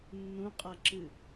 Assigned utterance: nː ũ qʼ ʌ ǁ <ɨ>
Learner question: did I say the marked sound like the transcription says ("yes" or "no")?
yes